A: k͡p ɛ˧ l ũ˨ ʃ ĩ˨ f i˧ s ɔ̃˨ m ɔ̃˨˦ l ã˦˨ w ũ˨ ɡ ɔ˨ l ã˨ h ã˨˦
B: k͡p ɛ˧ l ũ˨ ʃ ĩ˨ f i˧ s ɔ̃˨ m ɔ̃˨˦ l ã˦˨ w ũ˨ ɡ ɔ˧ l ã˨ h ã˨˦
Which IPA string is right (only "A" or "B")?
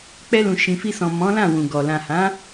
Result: A